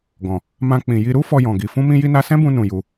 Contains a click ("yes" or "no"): no